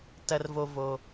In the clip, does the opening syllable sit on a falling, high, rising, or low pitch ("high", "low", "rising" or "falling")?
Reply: low